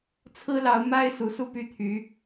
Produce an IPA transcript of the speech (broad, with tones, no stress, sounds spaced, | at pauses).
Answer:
t͡sʰ ɹ̩˥ l ɑ˧˥ ʊ̯ m a˥ ɪ̯ s u˧˥ s u˥˧ p y˥˩ t̪ʰ y˧˥